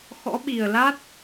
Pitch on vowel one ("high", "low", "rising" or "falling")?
rising